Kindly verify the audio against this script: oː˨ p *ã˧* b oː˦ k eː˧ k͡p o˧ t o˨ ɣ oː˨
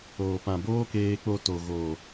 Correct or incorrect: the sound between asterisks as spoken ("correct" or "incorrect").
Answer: incorrect